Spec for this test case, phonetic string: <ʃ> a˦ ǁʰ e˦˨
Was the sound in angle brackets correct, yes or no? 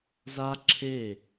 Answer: no